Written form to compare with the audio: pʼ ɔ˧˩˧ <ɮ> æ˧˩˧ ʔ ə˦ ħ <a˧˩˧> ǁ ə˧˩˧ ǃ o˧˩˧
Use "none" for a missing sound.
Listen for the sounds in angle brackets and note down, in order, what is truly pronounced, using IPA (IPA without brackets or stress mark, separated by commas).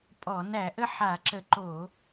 n, a˧˩˧